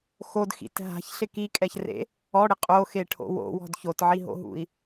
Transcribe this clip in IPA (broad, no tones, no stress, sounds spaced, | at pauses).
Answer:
x o d x ḭ t ɦ a̤ ç ɬ ɪ k i kʼ ɛ ç r ḛ | ɔ ɽ ɪ qʼ o x e ʈʰ o̰ w o̰ w ɔ̤ d ç o t ʕ i ɦ o̰ ɦ ṵ i̯